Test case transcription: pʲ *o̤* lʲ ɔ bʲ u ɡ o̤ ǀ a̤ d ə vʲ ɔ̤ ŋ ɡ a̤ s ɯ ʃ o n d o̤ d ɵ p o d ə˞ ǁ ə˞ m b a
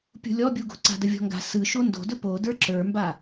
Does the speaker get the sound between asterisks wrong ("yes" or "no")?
yes